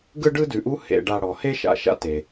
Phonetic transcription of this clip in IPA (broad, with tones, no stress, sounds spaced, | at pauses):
ɡ ɯ˥ ɖ ɯ˥ d ʉ˨ ʔ u˥ h ḛ˨ ɖ a˨ ɽ ɔ˩ h e˥ ʃ a̰˨ ʃ a̰˦ t e˨